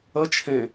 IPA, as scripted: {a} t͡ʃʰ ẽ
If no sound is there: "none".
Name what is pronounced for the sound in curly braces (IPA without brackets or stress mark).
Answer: ə